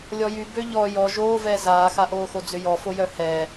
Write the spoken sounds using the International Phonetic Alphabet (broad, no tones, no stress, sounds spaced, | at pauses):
lʲ ɔ j y b ø ʎ ɔ j ɔ ʒ oː v ɛː z aː x a ʔ oː x o d͡z ʏ j ɔ f o j œ h ɛː